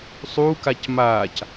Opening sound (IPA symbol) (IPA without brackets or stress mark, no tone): sˤ